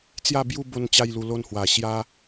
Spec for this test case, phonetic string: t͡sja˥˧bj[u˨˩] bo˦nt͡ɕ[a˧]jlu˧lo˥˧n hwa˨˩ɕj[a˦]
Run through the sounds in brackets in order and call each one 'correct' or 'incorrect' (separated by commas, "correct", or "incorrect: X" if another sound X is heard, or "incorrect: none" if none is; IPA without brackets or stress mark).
incorrect: u˥˧, incorrect: a˥˧, correct